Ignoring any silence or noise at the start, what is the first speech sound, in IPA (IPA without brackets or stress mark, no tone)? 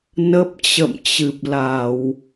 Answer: n